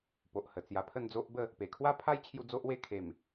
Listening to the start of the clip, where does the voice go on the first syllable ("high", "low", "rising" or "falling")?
low